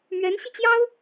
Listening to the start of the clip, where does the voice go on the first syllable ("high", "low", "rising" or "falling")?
rising